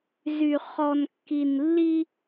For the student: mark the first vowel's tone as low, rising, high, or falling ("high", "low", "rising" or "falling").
low